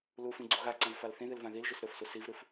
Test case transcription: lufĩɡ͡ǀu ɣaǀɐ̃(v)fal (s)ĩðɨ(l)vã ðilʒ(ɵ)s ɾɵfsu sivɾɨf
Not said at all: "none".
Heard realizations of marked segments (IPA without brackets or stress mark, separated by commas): v, θ, l, ɵ